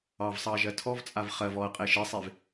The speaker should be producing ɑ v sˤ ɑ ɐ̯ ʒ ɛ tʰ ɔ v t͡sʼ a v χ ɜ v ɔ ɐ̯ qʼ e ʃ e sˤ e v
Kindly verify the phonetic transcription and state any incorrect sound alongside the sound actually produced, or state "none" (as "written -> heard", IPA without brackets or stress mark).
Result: ɛ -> ɜ